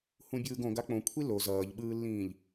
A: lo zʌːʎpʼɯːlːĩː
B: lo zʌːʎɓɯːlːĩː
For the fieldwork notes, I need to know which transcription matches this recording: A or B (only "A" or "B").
B